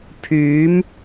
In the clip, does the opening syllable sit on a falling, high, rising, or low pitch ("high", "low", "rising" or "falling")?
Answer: rising